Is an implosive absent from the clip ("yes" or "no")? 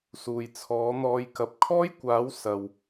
yes